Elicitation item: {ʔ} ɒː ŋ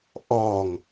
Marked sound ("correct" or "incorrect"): correct